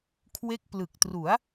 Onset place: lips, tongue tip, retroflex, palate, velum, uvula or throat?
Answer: velum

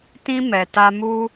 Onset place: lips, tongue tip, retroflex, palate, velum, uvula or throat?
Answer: tongue tip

